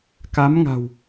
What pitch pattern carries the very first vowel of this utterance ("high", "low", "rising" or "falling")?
rising